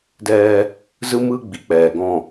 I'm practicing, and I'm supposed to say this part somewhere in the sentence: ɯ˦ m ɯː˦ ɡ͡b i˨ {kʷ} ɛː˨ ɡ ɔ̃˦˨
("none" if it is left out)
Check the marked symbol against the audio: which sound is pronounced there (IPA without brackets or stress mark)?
k͡p